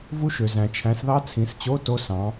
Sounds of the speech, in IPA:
v u˦˥ ʃ ø˨ z æ̃˨ t͡ʃʰ æ̃˨˦ s ð ɑ˦˥ t͡sʰ ĩ˨˦ s t͡ɕ o˧˥˧ t o˦˥ s ɑ̃˨˦

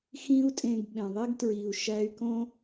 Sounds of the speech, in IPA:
x ĩ˥ u̯ tʼ ẽ˧ ɡ ɓ ẽ˩ ðˤ i˥ ɡ t ɹ i˩ u̯ ʃ æ˧ y̯ k õ˥

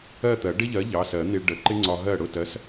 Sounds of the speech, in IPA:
ɜ˥˨ t̪ ɜ˨˩˦ ɖ ɪ˥ ʎ ɜ˨˥ ʎ ɑ˩˧˩ s ɜ˨˩˦ n̪ i˧ ɭ ɖ ə˨˩˦ ǃ ɪ˥ ŋ͡ǀ ɒ˧ ɦ ɜ˥˨ ɽ ʊ˥˨ t ɜ˨˥ s

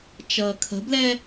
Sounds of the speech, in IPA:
t͡ʃ ʌː kʰ ə̤ b l ɛ

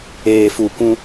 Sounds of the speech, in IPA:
eː˨ f u˨ kʷ ũ˦

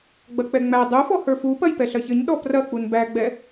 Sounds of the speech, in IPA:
ɡ͡b ɐ k͡p ɛ ŋ͡m æ dˤ u f ɔ h ə˞ f u p ɐ j p ɛ ɬ ɐ ç ɘ ɲ ɗ ɔ p r ɐ k͡p u n b æ ɡ͡b ɛ

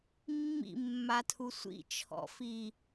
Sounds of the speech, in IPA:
mː ḭ mː a tʰ u sʷ ḭ t͡ʃʰ ɔ̰ f i

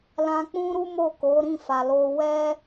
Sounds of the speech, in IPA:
l ã˧ k͡p ũ˦ ɾ u˦ m o˦˨ k o˨˦ ɾ ĩ˦˨ f a˨ l o˧ w ɛ˦

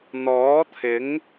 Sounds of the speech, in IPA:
n̪ ɔː˨˥ t̪ʰ ɪ˨˥ ŋ

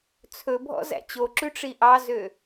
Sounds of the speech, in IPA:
t͡sʰ ɵ bʱ ɔ̰ z æ̰ t͡ɕ o ǁ ʉ ʈ͡ʂ i ʔ ɑ z ø

